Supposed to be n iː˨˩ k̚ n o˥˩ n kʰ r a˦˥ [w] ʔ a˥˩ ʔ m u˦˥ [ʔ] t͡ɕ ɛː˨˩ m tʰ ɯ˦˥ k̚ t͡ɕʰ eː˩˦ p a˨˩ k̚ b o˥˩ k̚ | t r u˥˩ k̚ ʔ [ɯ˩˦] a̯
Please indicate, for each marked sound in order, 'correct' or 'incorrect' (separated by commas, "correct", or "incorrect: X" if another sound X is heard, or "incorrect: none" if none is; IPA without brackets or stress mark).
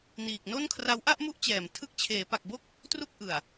correct, correct, incorrect: ɯ˨˩